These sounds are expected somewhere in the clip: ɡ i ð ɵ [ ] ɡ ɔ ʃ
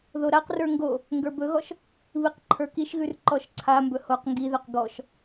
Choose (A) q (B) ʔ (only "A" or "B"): A